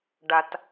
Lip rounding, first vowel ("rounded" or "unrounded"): unrounded